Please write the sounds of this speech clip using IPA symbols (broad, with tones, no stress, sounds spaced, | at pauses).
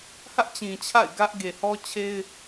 h ä˦ ʔ t͡ɕ ĩ˨ t͡ɕʰ a̰˦˨ ɪ̯ ɡ ä˦ ʔ ɡ e˨ h ɔ˦ t͡ɕʰ e˦ ɪ̯